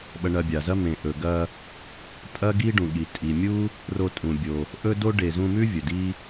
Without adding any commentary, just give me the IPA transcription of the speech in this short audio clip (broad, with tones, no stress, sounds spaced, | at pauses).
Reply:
ɓ ɐ˧ ɳ ɐ˧ bʲ a˩ z ɐ˥ m ẽ˩ ʔ ɵ˩ ɡ ɐ˧ | tʼ ɐ˥ ɡ i˥ ɖ ũ˩ ɠ i˩ tʼ i˩ mʲ u˥ | r o˧ tʼ ũ˩ bʲ o˩ | ʔ ɵ˥ d o˥ ɖ e˩ z ũ˧ m ʉ˥ vʲ ɵ˩ d i˥